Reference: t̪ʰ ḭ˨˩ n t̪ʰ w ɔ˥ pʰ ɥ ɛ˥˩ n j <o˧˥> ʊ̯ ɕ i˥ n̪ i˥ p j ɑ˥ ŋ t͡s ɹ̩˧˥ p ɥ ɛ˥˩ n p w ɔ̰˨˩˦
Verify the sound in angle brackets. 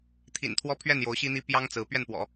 correct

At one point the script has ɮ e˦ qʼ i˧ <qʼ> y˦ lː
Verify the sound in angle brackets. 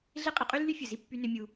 correct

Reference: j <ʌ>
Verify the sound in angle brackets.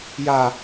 incorrect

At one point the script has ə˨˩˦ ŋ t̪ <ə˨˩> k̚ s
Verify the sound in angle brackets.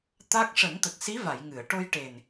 correct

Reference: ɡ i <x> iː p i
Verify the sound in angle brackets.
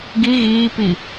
incorrect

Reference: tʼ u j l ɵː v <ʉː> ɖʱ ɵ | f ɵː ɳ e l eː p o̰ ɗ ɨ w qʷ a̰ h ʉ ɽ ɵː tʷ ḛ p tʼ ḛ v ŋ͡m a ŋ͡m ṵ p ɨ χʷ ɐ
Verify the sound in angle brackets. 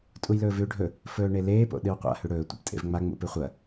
correct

